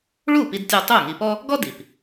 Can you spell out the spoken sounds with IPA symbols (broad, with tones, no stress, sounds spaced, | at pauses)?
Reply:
ɭ u˥˩ p i˧ d tʲ ɔ˧ tˤ u˥˩ ŋ i˧ p ɔ˥ | ɡ ɔ˥ d i˩ p